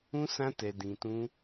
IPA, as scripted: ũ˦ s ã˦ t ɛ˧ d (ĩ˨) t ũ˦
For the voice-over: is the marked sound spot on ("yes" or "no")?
no